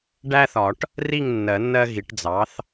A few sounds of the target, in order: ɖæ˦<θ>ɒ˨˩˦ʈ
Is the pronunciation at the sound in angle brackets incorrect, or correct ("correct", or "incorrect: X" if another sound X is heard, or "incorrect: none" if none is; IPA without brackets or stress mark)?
correct